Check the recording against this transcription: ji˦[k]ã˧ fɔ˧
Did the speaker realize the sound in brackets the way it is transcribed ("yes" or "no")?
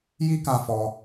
yes